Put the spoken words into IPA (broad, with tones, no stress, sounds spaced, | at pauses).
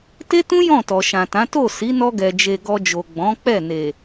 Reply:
t e˦ t ũ˦ j ɔ̃˦˨ t ɔ˨ ʃ ã˨ t ã˨˦ t o˦˨ s i˨˦ n ɔ˧ ɡ ɛ˨ d͡ʒ e˨ ɡ ɔ˧ d͡ʒ o˨ ɡ͡b ɔ̃˨˦ k͡p ɛ˦˨ n e˨